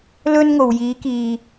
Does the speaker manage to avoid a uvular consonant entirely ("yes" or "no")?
yes